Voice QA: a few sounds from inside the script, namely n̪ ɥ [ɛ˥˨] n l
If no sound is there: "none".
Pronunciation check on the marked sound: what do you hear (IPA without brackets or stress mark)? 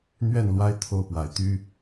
ɛ˥˨